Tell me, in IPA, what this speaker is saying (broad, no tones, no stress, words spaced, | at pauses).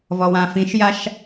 vɔwãfĩʃjaʃ